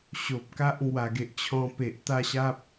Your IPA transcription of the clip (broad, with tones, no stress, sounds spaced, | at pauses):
ɕ o˨ p̚ k a˦ ʔ ŋ w a˨˩ ɡ e˨ ʔ t͡ɕʰ ɔ̃˧ p e˨ ʔ t̪ a˥˧ ɕ a˦ p̚